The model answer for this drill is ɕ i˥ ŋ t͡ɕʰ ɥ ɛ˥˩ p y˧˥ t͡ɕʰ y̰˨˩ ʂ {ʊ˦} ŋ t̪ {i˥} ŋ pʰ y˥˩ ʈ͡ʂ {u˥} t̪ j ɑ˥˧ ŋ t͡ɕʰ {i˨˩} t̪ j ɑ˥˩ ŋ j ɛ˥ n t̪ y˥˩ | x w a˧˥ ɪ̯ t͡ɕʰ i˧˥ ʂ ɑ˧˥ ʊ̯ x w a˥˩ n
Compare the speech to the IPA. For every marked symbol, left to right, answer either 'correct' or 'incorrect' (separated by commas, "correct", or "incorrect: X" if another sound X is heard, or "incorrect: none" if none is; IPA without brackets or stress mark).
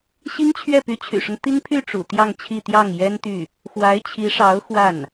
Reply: correct, correct, incorrect: ṵ˨˩, incorrect: i˥˧